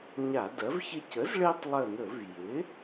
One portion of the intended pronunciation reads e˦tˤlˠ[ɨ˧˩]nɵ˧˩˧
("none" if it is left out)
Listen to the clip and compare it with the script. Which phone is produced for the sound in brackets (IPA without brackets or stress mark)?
ə˧˩